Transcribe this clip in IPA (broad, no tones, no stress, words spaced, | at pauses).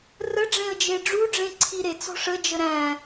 rəɖ͡ʐẽə̯d͡ʒe ɖ͡ʐuɖ͡ʐẽǀʰi ɾet͡sɔ̤ ʂəd͡ʒə ɾæ̃